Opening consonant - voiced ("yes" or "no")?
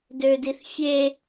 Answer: yes